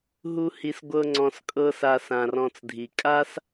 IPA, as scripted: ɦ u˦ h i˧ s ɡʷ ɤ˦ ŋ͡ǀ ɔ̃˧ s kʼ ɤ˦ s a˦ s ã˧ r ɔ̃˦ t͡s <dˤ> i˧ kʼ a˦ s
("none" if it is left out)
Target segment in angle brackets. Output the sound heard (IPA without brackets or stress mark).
dʱ